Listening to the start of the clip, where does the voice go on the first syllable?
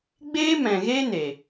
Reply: high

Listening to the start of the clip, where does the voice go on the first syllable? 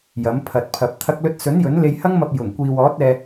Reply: rising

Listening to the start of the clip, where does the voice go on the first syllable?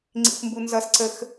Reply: high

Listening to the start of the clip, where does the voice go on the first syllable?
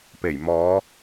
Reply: low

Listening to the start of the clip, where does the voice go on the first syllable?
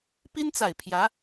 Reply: high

